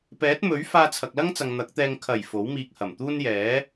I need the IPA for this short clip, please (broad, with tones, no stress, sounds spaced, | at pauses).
p ɛː˨˥ t̚ m ɵ˨˥ ɥ f aː˧ t͡sʰ ɐ˨ k̚ l ɐ˥ ŋ t͡s ɐ˨ ŋ n̪ ɐ˨˥ k̚ t̪ ɛː˧ ŋ kʰ ɐ˨˩ j f o˨˥ w m iː˧ k̚ h ɐ˨˩ m t̪ uː˥ n j ɛː˨˥